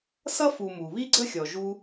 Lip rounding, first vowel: unrounded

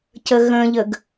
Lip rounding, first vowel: unrounded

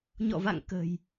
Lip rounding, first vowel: rounded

